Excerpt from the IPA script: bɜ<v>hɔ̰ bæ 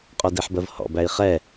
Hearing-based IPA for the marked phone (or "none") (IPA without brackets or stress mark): v